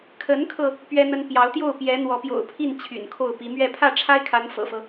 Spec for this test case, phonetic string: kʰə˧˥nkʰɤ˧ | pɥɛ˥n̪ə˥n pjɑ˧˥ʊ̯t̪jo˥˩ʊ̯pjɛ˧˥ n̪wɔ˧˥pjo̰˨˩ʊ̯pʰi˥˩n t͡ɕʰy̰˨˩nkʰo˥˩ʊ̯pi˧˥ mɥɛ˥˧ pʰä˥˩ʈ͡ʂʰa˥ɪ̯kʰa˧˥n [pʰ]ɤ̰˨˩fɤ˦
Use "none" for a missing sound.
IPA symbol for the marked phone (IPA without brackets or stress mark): f